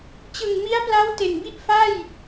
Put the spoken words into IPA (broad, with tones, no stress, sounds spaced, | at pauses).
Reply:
t͡ɕ ɯ˨˩ ŋ m i˦˥ a̯ p l a˦˥ w t e˨˩ n b i˥˩ ʔ f a˥˩ j